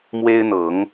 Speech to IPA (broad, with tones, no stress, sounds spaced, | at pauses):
m w e˦ ɪ̯ n̪ ɤ˨˦ ŋ